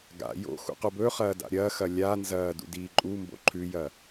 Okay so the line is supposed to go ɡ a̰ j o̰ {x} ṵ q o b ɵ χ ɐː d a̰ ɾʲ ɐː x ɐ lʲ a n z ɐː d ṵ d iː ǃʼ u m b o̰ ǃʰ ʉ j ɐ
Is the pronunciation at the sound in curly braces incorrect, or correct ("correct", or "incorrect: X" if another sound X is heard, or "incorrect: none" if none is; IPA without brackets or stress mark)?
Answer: correct